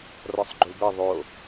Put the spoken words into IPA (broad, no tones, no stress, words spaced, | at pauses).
rɔsˤɡ͡ǃubɘ ðˤo